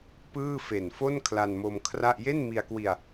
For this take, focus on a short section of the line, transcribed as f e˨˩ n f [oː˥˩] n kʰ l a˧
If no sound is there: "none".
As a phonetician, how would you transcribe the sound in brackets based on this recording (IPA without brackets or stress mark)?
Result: o˥˩